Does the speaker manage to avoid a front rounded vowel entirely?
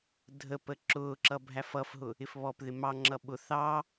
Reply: yes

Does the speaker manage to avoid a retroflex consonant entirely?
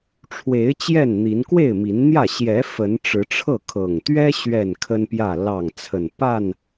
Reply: no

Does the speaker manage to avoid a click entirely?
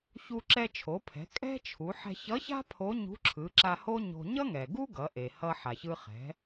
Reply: no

